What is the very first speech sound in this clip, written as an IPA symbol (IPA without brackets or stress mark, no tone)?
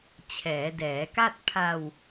t͡ɕʰ